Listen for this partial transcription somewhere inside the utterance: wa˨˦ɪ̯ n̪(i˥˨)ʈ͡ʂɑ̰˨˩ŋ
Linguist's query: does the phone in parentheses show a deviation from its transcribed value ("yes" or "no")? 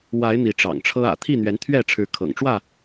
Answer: yes